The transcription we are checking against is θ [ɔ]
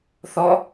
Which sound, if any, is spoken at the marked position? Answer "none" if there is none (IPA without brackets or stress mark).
ɔ